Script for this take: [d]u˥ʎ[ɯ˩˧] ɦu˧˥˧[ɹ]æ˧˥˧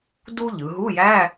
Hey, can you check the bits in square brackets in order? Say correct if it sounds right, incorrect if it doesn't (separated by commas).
correct, correct, incorrect